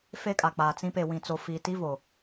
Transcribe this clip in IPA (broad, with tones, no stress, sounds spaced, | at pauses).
f e˦ kʼ a˨ k͡p aː˨ t͡s ĩ˦ p e˨ w ĩ˨ t͡s o˨ f iː˨ t i˦ v o˨